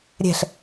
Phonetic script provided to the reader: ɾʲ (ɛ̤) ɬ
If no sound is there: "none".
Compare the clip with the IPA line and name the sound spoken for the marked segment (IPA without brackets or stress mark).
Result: ɛ̤